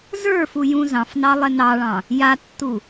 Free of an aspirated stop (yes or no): yes